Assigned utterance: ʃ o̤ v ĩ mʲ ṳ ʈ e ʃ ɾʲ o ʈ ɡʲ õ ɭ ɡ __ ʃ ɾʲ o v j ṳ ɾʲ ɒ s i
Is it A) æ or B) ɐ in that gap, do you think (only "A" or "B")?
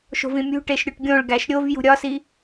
A